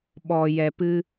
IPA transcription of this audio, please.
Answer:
ɓ ɔ˨ j ɛ˨ p ɨ˦

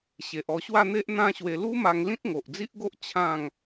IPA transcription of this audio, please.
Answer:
ɕ e˨ ʔ ɔ˧ ɕ w a˥˧ n̪ e˦ ʔ n̪ ã˦ ɕ w e˧ l u˦ m a˧ ŋ l ĩ˦ t̚ ŋ o˨ ʔ d͡z i˦ ʔ ɡ o˦ ʔ t͡ɕʰ ã˥˧ ŋ

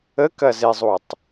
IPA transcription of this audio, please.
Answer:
ə k ɐ z e zˤ u tˤ

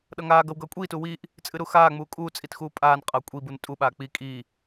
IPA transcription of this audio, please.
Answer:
ɗ ʌ ŋ aː ɡ ʌ w ɡ ʌː kʷʼ iː t uː w iː ʔ | t͡sʼ ɨ ɾ u x aː ŋ͡m uː kʼ uː t͡sʼ i t x uː pʼ aː n qʼ ʌː kʷʼ i b u n tʼ u ɓ aː k͡p i kʼ iː

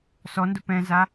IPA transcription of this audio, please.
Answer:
s ɔ n d ʊ p ɛ̃ z a

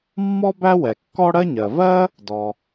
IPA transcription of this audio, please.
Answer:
mː ɔ˥ b æ˥ w ɛ˩ kː ɔ˥ ɽ ɜ˥ ɲ ɜ˩ v ɜ˥ | d ɔ˩

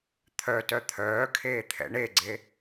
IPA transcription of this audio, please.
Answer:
t̪ʰ œ t œ t̪ʰ œː kʰ eː t̪ʰ ɛ̰ ɳ e ɡ͡ǀ e

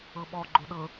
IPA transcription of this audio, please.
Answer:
ɤ ɓ ɔ ɡ͡ǃ o ɗ ɤ

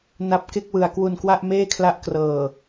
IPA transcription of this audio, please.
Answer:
n a˦˥ p̚ k e˥˩ k̚ w ɯ˧ a̯ k w u˧ n k w a˥˩ ʔ m eː˥˩ kʰ l a˦˥ ʔ k r ɤː˨˩

